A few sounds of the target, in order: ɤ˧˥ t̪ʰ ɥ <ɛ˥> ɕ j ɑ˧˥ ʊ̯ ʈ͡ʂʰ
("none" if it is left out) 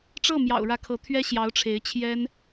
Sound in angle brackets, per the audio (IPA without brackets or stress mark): ɛ˥